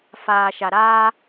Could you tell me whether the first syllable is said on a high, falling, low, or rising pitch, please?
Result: low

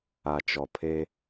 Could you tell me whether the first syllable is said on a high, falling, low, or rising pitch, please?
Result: low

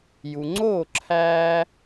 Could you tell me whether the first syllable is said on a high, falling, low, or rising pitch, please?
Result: low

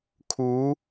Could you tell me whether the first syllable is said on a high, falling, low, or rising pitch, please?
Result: rising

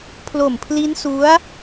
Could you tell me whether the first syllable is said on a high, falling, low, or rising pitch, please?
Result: low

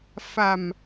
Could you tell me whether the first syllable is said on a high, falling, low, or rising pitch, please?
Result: low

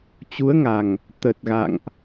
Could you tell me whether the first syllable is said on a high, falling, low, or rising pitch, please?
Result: rising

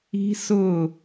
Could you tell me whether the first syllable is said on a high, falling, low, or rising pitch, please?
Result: high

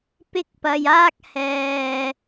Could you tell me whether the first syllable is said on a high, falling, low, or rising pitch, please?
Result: high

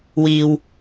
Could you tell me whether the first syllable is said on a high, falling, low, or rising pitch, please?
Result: low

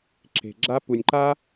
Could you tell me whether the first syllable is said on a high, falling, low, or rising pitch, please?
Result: low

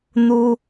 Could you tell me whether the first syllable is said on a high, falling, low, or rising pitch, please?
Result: high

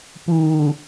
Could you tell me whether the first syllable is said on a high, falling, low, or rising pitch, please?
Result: low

